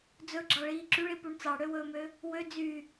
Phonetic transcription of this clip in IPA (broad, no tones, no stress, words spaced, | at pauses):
d͡zɵɡ͡ǁɑɭiː ǁyɭipuɳ t͡sɑɽøwɵːmø | wø d͡zy